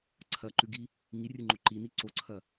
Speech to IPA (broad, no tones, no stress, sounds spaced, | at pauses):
ǀʰ ɐ ǃ ʉ ɡ i | ŋ i rʲ ɨ ŋ͡ǃ o ǃ i n i ǀ o ǀʰ ɐ